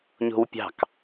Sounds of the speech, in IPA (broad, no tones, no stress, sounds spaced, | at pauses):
ɲ o̤ w pʲ ɑ̤ k